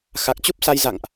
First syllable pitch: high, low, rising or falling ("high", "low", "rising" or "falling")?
low